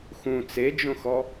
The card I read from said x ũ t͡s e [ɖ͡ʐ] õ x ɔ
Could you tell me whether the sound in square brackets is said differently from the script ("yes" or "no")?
yes